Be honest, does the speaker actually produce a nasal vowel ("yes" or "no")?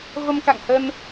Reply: no